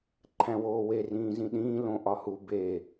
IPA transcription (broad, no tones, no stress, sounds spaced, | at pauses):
ǃʰ æ̃ w oː w e r ĩː z ĩ ɗ ĩː l õ ʔ ɒ h u b e